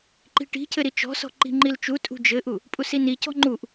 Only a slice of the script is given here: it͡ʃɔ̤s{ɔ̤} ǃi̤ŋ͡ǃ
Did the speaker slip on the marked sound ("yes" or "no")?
no